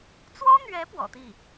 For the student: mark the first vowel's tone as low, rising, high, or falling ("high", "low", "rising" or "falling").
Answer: high